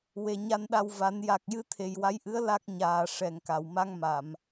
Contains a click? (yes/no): no